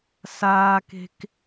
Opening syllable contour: high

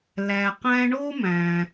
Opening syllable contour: low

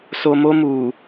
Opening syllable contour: low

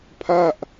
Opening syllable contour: falling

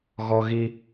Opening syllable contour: high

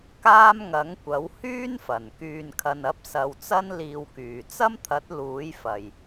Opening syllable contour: high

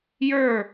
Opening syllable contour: falling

